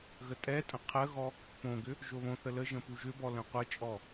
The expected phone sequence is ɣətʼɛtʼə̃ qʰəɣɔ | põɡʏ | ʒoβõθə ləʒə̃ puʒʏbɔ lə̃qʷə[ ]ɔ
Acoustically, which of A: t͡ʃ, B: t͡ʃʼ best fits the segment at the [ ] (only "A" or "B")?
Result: B